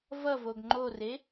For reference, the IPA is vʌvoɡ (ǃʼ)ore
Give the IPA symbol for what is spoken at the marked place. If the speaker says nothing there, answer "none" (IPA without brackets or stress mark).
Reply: ŋ͡ǃ